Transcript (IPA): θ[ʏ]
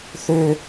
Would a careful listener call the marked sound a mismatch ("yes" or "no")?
no